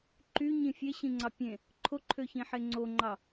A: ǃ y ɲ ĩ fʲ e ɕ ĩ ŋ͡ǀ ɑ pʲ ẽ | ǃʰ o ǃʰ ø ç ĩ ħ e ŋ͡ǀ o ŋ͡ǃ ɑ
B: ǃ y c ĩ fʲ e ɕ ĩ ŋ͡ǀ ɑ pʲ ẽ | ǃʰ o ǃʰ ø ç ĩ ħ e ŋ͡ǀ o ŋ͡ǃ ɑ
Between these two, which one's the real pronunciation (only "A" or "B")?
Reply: A